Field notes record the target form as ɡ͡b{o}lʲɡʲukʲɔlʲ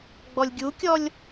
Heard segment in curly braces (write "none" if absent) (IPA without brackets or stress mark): ɔ